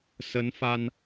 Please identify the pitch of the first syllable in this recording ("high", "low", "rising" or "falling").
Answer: rising